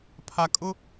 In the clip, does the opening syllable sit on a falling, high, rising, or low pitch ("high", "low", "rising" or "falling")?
high